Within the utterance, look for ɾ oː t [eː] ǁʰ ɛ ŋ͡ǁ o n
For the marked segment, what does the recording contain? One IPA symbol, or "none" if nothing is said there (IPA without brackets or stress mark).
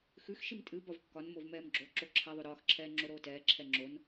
ɛː